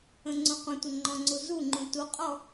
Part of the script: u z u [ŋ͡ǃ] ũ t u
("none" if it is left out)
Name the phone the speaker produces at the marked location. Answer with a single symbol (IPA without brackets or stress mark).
ŋ͡ǃ